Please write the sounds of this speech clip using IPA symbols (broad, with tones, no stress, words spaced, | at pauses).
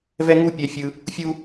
vɛ˥ŋu˥ pʲɛ˧fʲɯ˧ | fʲu˥